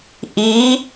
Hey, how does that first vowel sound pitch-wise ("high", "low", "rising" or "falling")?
rising